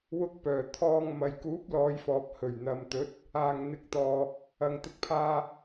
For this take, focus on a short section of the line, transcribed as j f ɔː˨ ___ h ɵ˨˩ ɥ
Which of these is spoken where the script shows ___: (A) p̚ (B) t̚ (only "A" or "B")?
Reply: A